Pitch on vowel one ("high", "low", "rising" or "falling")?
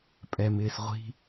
low